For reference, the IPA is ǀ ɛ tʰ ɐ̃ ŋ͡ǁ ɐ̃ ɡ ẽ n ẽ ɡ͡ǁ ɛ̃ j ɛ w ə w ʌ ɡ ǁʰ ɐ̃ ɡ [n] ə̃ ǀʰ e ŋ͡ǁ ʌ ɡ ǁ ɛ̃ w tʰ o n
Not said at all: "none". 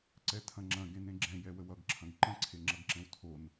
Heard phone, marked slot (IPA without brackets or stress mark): ǃ